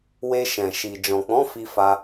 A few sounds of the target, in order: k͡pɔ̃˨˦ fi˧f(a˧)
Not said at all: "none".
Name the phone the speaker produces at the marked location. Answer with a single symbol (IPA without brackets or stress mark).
a˧